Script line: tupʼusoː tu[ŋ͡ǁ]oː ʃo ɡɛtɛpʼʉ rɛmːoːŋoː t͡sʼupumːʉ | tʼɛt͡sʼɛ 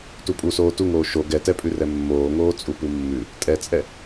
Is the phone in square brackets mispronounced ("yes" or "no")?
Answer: yes